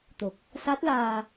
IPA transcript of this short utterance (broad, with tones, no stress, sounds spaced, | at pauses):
t̪ o˨˩ k̚ | s a˦˥ t̚ l aː˧